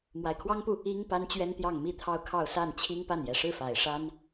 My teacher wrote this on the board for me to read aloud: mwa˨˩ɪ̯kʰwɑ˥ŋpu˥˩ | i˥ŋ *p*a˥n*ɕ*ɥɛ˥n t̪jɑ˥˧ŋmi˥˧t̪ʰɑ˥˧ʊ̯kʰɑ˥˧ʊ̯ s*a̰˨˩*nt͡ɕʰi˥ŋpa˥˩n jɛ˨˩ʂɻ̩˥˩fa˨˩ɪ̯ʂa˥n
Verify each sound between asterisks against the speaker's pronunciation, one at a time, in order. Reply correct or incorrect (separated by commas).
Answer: correct, incorrect, incorrect